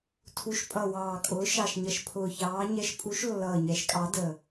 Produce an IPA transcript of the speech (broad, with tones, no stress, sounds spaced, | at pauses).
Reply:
tʰ u˨˦ ʃ pʼ ʌ˨˩ w ɑː˨˩ kʼ ʊː˨˦ ʃ ɑ˨˩ ʃ ɲ ʌ˨˩ ʃ pʰ ʊː˨˩ ç ɑː˨˦ ɲ ɛ˨˦ ʃ pʼ u˨˦ ʃ lː ʌː˨˩ ɲ ɛ˨˦ ʃ kʼ ɑ˨˦ d ə˨˩